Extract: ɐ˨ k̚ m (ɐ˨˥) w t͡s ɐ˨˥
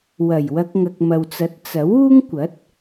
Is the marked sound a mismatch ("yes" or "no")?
yes